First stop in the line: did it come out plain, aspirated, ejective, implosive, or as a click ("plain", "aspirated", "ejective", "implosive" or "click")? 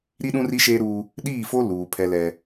implosive